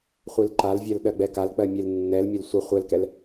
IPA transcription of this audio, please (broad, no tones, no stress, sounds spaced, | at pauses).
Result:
χʷ i l ǃ a l vʲ ɜ l ɗ ɜ ɡ͡b ɛ k a l k͡p ɜ mʲ e l nː ɛ l mʲ ə l sʷ ə χʷ ɛ l k ɛ l